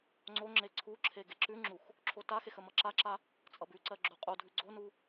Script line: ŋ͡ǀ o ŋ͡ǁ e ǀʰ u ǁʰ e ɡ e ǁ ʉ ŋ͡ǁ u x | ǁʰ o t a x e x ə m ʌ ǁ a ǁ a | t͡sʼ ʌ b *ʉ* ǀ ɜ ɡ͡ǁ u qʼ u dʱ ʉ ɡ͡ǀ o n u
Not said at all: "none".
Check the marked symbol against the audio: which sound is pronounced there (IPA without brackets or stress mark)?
ʉ